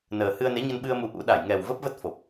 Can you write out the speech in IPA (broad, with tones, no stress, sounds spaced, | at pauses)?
n əː˨˩ h ɨ˧ ə̯ n e˨˦ ɲ ə˧ n ɓ ɨ˧ ə̯ m u˨˦ ʔ ṵ˧˥ ɗ a˧˩ j ŋ ɛ˨˩ w v ə˦˥ p̚ v ə˦˥ t̚ f o˨˩ p̚